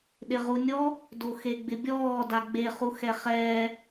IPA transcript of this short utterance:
ɗɪʁunʲɔ | doxeɡ͡bɪbʲɔː daɡ͡be χuxɛχɛː

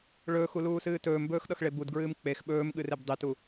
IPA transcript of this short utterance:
ɭɵːxuluːsɨː tɵːmbɵːxɗʌxɭe budɡɹɨːm k͡pex ɓɵːmɠɨreb dˤitu

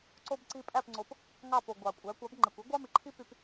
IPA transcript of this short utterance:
ǀo˧b ǀi˧ pʼæ˥˩pŋ͡ǀo˩˥p | ŋɑ˥˩po˩ ɡʷɑ˩kʷʼæ˩˥ kʷɑ˩˥bŋ͡ǃe˩kʷi˥ ɡʷɑ˥mi˩ǃʰi˥py˧p

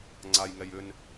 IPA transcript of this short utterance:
ŋ͡ǀajŋɛj ʏn

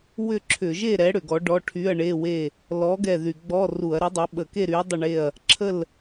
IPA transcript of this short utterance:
wʏ˥˨ǁʰʏ˧˩˧ ʒe˥˨ɾɛ˨˥ ɽʏ˧˩˧ɡɔ˨˥ ɖɔ˧˥˧ʈʰy˧˥˧ɐ̯ɳe˧˥˧we˥˨ | lɔ˨˥ ɡɛ˥˨ðy˧˩˧ ɡ͡bɔ˧˥˧ru˧˩˧ɐ̯ɾy˨˥dˤɛ˨˥ ɓə˧˩˧ke˥˨ɾy˨˥ɐ̯ dˤə˥˨ɳe˥˨ɐ̯ | ǁʰə˥˨l

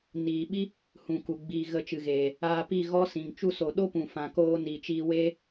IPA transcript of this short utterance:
niː˨ɓi˦ | hũ˨ku˨ ɡ͡biː˧ɣə˧t͡ʃɨ˨ɣeː˨ | aː˧pi˦˨ɣɔ˦sĩ˨ŋ t͡ʃu˧so˨ ɗo˦pũ˨fã˨koː˧ ni˨t͡ʃiː˧weː˦

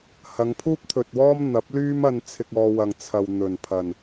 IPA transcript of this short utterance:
hɐ˨˧ŋpʰuː˥p̚t̪ʰɵ˨t̚wɔː˥m n̪ɐ˨˥p̚lyː˥mɐ˧n t͡sʰɪ˧k̚ɔː˧wɐ˨ŋ t͡sʰɐ˨w n̪ɵ˨˩npʰɐ˨˩n

